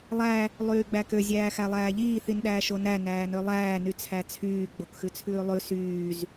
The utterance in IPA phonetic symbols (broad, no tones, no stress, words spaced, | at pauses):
lˠæ | lˠyːɡ͡bækø zʲæːxælˠæːʎiː θinɗæːʃonæ næːnølˠæː nyt͡sʰæt͡sʰyː ɡ͡bokxʉt͡sʰʉːlˠʉ syːz